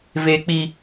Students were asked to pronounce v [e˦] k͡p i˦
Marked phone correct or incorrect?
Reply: correct